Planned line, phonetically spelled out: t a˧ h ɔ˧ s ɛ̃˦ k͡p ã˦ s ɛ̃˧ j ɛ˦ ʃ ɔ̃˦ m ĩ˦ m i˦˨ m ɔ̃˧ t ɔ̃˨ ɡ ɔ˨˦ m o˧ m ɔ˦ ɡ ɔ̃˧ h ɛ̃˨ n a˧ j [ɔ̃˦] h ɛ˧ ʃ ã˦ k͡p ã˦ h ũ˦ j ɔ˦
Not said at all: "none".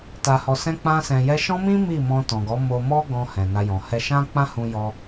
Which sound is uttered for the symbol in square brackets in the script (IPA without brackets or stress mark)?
ɔ̃˨